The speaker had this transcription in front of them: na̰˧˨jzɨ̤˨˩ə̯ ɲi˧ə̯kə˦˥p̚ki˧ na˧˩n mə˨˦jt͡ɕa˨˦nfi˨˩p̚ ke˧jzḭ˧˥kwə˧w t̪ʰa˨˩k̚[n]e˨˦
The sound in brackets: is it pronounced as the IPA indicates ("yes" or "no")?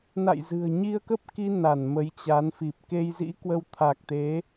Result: no